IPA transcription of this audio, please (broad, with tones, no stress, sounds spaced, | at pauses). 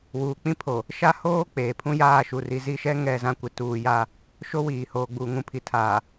w uː˨ k͡p ĩ˦ pʰ o˨ | ʃ a˦ h oː˦ k͡p eː˨ pʰ ũ˦ j aː˦˨ ʃ u˨ r i˨ z i˦˨ ʃ ɛ˦ ŋ ɛ˦˨ z ã˦ kʷ ɪ˨ t uː˨ j a˦˨ | ʃ o˦ w iː˨ h oː˨ ɡ͡b uː˨ ŋ ũ˨ pʰ i˨ tʰ aː˨